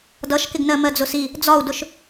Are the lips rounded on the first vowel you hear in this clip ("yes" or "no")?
no